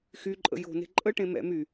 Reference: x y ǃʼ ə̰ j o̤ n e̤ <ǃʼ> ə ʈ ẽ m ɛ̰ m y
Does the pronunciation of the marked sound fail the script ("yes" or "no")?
no